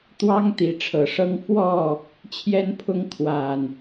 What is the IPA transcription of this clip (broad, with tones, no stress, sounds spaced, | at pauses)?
t̪ w ɑ˦ ŋ t̪ i˨˦ ʈ͡ʂʰ ɤ˨˩ ʂ ɤ˦ ŋ f w ɔ˥˨ | t͡ɕʰ j ɛ˦ n pʰ ʊ˦ ŋ kʰ w a˨˩ n